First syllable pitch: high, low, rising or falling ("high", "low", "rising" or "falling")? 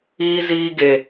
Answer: high